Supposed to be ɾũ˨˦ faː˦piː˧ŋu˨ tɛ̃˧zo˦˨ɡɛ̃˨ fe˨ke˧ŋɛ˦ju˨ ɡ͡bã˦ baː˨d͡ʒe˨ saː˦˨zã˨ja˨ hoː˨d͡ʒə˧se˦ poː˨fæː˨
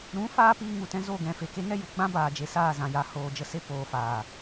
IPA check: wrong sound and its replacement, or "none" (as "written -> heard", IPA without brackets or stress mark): æː˨ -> aː˨